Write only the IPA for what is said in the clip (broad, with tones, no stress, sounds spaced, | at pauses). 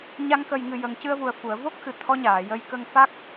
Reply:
ɲ a˧ ŋ k ə˨˩ j ŋ ɨ˨˩ j ə˨˩ ŋ c ɨ˧ ə̯ v u˨˩ ə̯ f u˨˩˨ ə̯ v o˦˥ k̚ x ɨ˨˩ t̪ʰ ɔ˧˥ ɲ aː˨˩˨ j ə˧ j k ə˧ ŋ f a˦˥ k̚